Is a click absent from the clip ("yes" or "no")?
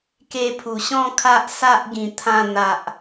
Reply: yes